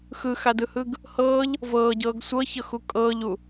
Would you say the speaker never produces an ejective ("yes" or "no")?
no